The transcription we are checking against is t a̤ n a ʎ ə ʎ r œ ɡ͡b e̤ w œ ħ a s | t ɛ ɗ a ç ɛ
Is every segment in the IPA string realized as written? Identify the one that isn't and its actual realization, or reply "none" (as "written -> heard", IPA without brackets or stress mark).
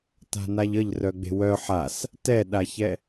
none